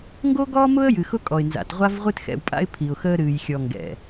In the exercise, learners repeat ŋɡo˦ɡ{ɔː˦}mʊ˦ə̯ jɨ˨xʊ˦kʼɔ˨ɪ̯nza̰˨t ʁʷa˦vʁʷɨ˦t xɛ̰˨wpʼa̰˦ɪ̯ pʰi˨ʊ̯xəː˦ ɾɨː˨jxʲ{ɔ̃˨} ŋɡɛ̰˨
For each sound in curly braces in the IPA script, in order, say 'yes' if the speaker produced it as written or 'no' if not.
yes, no

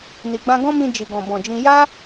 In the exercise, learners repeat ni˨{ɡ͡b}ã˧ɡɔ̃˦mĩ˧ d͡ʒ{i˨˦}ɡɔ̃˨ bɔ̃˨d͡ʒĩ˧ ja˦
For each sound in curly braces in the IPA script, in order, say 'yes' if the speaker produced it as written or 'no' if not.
yes, no

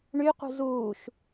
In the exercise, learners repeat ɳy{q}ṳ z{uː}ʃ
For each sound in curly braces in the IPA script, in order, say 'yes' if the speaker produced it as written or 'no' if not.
yes, yes

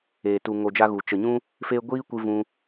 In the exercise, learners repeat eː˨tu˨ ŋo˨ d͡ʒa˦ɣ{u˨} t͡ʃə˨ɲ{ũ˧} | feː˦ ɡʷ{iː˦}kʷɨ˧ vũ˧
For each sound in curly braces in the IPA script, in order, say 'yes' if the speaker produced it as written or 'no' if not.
yes, no, yes

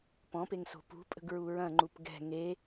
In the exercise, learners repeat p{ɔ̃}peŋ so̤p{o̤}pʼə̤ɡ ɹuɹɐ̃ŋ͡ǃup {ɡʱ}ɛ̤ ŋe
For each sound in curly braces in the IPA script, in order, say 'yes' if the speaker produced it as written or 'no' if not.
yes, no, no

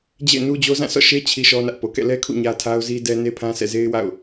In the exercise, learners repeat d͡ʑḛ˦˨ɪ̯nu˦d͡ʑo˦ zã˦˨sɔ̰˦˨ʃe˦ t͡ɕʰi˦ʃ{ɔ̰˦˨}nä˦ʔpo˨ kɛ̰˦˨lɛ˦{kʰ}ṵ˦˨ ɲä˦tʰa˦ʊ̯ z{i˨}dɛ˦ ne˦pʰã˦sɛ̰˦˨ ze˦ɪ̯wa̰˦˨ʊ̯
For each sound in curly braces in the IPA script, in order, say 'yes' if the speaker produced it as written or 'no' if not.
no, yes, no

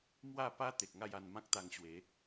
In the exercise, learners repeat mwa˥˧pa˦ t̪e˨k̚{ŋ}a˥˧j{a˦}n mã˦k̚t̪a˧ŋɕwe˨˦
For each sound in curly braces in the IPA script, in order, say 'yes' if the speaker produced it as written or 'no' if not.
yes, no

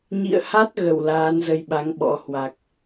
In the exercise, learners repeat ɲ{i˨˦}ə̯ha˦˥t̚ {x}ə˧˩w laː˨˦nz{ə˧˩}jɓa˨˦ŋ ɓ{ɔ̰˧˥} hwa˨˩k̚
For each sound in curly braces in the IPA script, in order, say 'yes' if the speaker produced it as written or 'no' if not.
no, no, no, yes

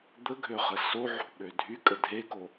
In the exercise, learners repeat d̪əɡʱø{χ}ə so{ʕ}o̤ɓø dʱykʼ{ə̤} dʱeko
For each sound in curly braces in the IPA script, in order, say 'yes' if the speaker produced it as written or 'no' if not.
yes, yes, no

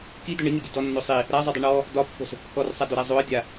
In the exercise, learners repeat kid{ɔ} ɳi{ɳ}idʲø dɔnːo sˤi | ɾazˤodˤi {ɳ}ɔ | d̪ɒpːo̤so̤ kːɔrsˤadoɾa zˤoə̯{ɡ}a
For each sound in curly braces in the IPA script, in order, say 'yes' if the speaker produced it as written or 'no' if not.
no, no, yes, no

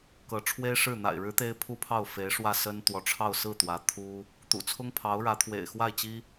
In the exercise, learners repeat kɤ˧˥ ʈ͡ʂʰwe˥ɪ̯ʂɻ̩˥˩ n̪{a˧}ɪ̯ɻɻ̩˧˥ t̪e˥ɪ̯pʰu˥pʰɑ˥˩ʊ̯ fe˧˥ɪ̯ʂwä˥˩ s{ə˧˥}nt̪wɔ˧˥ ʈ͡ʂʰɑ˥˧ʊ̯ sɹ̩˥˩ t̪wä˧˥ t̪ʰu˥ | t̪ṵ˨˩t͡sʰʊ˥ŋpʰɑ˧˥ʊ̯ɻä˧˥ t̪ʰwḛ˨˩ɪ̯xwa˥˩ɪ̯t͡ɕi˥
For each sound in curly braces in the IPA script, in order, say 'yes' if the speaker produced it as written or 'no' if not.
no, no

